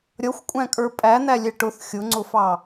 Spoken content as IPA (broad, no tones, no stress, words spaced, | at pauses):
ɾʲʌxʷkʷʼæ̃kʼə˞ pʼæn̪ælʲɛ ʈʊθ xʲʊŋ͡ǀʊfɑ